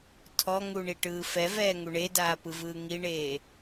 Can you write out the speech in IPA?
tʰ ɔ ŋ u ɳ i ʈ ɯː f ɛ v ɛː ŋ u ɳ e d aː p ɯ v ɯː ŋ i ɳ eː

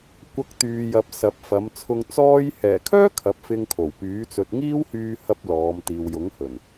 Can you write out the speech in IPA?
kʷ ɐ˨˥ k̚ t̪ yː˨ j ɐ˨ p̚ s ɐ˨ p̚ f ɐ˨˧ m t͡sʰ ʊ˧ ŋ t͡s ɔː˧ j h ɛː˨˩ kʰ œː˥ kʰ ɐ˨˥ p̚ f ɪ˧ ŋ kʰ o˨˩ w p yː˨˥ t͡s ɵ˨ t̚ ŋ iː˥ w h yː˧ h ɐ˥ p̚ l ɔː˨˧ m t̪ iː˨ w j ʊ˨˥ ŋ h ɵ˨˩ n

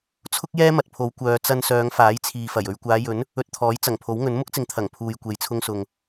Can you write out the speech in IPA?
t͡sʰ ʊ˥ k̚ j ɛː˥ m ɐ˨ t̚ pʰ o˨˧ w kʷ œː˨˧ t͡s ɐ˧ n s œː˨˧ ŋ f aː˨˥ j t͡sʰ iː˨ f ɐ˨˩ j ɵ˧ ɥ kʷ aː˨˧ j ɵ˨˥ n | ɵ˧ t̚ t̪ʰ ɔː˨˥ j t͡s ɐ˨˩ ŋ pʰ o˨˥ w ŋ ɵ˨˥ n m ʊ˥ k̚ t͡s ɪ˨ ŋ t̪ʰ ɐ˨˩ ŋ pʰ uː˨ j kʷ e˨ j t͡sʰ ʊ˧ ŋ s ʊ˨ ŋ

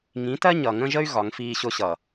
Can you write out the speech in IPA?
ŋ ĩ˨˦ t ɜ˦ ɲ ʌ˨ ŋ ə̃˦ ʒ ə˦ y̯ ɣ ɒ˨˦ ŋ f iː˦ ɕ ʊ˦ ɕ ʌ˨

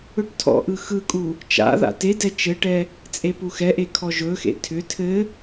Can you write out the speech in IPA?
ɵ ʈ tʰ ɔ̰ ʔ ɯ x ɯ kʼ u | t͡ʃ a̰ ð a̰ t e d ɛ t͡ʃ ɘ ʈ ɛ | t͡sʼ e p u x ɛ ʔ e kʰ ɔ ʒ ɵ x ḛ tʰ ʏ tʰ ɘ

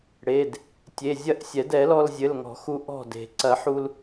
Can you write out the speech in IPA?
ɽ e˩˧˩ d | tʲ e˩˧˩ zʲ ɐ˥˩ ʔ sʲ ɛ˨˩˦ d ɛ˨˩˦ l ɔ˧ l zʲ ɘ˩˧˩ l ŋ ɔ̤˨˩˦ x u˧ ʔ ɔ̤˥˩ d e̤˨˩˦ ǀ ɐ˨˩˦ ħ u˧ l

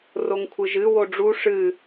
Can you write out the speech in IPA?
r o ŋ kʷʰ ɨ ʒ ɨ w o ɖ͡ʐ u ʂ ɨ

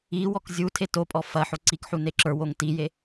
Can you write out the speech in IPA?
i w ɔ k zʲ u tʰ e t o pʼ ɔ f ɐ ħ o ǀ i k ħ u n e ǁ ə˞ w o ŋ t i j e

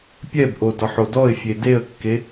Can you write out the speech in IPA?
pʲ ɛ b ʔ o d ɒ ħ o d ɔ ɪ̯ fʲ e d e ə̯ kː e

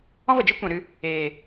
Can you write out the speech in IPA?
ɔ̃˦ v ə˨ d͡ʒ i˦ kʷ ɛ̃˨ ɾ ɨ˧ | eː˨

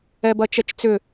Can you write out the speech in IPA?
ɛ b ɐ t͡ʃ ɛ t͡ʃ t͡s ʏ

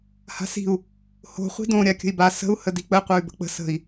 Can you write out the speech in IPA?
h a̤ s i̤ u̯ | h o̤ χʷ i̤ d õ ɾʲ a kʲ ə̤ i̯ b a s ə̤ u̯ h ə d i k͡p ə qʷ ə˞ y̯ b ə̤ k͡p ə̤ s ə̤ i̯

